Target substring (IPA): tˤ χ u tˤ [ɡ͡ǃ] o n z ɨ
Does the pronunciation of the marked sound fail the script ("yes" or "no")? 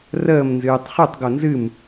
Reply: yes